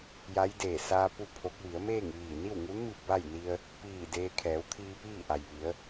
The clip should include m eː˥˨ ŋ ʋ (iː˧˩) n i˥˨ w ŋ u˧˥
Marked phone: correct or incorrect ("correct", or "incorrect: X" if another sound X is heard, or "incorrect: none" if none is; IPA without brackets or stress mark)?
correct